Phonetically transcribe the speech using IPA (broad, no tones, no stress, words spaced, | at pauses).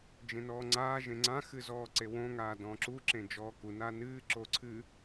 d͡ʒẽnɔːŋ͡ǀaː ʒẽŋ͡ǀã xɨzɔːǀewõ ŋaːdɔ̃ːǁu ǁẽd͡ʒɔːku nanɨː ǁoǀʰɨ